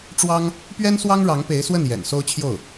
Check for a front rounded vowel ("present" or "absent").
absent